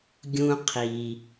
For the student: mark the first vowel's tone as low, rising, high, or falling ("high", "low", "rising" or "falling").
low